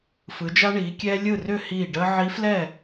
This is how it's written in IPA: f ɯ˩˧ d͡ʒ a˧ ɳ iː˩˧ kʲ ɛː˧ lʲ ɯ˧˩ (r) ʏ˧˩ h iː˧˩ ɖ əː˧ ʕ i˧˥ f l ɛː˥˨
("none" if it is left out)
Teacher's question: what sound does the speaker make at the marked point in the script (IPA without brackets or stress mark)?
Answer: r